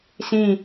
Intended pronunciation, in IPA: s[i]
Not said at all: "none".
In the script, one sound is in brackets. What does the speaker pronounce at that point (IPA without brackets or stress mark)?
ĩ